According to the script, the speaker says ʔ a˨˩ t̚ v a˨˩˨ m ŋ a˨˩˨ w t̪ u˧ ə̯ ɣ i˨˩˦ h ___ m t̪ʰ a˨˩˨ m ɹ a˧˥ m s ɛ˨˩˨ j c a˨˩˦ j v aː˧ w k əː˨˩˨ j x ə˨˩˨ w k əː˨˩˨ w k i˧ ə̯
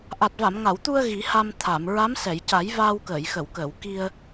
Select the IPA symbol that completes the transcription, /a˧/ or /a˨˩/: a˧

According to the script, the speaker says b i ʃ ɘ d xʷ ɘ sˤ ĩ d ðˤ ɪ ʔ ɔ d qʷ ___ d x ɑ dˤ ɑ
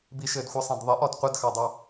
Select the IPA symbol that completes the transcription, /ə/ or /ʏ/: ə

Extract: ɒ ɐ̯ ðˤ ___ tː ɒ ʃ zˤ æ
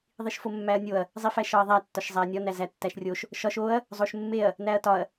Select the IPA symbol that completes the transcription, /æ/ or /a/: æ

